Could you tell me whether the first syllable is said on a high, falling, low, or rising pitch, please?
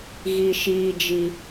high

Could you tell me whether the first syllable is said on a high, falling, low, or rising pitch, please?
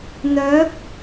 rising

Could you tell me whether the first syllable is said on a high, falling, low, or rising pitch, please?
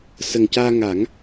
low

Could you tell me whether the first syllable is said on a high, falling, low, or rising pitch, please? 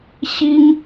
high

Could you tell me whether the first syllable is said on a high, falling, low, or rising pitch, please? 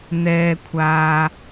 low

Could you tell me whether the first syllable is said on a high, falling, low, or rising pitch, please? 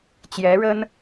rising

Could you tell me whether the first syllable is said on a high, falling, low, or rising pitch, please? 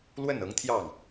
falling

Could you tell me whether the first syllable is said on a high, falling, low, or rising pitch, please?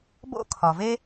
high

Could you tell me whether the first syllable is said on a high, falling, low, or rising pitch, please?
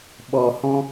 low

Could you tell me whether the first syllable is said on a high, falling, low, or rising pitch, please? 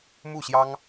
falling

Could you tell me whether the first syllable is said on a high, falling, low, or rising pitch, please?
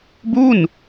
falling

